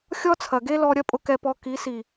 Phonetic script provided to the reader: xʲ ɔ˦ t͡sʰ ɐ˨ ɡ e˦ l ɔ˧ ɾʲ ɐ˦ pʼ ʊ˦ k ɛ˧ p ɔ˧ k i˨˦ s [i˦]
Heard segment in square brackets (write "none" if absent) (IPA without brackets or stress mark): i˨